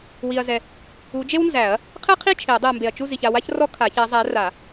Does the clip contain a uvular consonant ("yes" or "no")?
yes